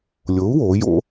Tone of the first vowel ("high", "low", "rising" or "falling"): rising